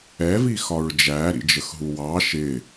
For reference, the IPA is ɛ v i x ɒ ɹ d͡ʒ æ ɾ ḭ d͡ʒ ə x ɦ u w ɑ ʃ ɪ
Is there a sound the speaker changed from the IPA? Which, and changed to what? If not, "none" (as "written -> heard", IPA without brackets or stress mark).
none